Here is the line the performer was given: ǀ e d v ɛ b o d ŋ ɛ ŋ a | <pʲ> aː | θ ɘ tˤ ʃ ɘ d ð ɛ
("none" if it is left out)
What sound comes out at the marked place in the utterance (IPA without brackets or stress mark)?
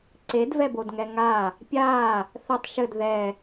pʲ